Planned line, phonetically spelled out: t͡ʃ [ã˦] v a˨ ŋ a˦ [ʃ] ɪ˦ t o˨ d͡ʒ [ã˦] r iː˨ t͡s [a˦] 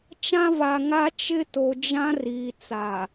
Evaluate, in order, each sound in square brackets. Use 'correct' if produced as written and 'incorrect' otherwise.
correct, incorrect: t͡ʃ, correct, incorrect: a˨

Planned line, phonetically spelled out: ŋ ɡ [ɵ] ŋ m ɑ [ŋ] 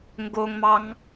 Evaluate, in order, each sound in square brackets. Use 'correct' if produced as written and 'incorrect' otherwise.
incorrect: o, correct

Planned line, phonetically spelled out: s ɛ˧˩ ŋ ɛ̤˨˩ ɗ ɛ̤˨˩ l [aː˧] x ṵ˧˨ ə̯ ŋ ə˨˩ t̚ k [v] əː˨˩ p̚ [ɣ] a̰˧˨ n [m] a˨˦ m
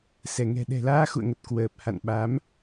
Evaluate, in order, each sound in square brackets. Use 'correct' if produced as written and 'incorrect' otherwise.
correct, incorrect: w, incorrect: h, incorrect: ɓ

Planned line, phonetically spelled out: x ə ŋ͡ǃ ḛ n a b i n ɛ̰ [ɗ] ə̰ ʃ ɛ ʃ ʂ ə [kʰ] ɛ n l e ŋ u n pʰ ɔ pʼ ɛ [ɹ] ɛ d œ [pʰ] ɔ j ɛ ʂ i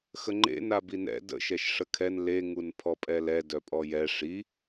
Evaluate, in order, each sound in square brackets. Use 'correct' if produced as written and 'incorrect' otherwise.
incorrect: d, correct, incorrect: l, incorrect: pʼ

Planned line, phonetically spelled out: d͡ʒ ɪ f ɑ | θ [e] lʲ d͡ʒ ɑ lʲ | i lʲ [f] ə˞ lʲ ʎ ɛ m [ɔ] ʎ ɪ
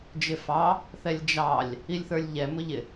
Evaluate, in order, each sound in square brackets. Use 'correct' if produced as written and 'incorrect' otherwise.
incorrect: ɛ, incorrect: θ, incorrect: ʊ

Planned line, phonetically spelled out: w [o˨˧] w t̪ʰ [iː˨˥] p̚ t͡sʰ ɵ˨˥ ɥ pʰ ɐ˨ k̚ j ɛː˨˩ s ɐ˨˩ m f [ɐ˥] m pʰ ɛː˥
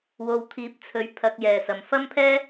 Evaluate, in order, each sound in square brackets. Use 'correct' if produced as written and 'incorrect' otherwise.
incorrect: o˨, correct, correct

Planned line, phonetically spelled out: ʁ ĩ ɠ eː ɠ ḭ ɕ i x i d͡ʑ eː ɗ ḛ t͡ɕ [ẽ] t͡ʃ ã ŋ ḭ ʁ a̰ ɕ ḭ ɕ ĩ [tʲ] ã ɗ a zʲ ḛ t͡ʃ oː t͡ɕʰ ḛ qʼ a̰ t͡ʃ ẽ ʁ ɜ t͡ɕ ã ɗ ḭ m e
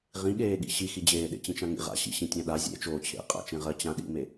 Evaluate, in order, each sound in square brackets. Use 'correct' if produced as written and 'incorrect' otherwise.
incorrect: ĩ, correct

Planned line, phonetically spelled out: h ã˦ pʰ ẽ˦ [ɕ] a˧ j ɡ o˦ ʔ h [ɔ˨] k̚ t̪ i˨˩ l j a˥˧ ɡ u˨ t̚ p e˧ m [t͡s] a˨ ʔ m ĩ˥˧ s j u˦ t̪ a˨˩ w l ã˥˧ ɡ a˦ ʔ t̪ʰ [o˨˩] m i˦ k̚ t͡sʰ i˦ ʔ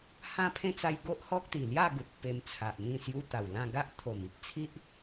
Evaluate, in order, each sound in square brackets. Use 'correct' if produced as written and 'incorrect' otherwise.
incorrect: t͡s, incorrect: ɔ˦, incorrect: t͡sʰ, correct

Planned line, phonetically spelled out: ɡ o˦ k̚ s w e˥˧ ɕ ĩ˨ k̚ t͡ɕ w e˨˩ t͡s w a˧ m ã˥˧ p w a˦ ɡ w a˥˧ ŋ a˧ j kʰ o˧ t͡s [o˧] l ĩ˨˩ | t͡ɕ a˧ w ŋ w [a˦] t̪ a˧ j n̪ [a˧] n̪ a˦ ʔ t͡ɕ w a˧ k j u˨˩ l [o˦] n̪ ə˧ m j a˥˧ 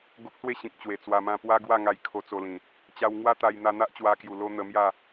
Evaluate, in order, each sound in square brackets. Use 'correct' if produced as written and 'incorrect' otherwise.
correct, correct, correct, correct

